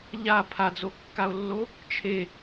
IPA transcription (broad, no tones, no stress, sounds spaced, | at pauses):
ʎ a pʰ a d͡z o kː a o̯ lː o | t͡ʃʰ e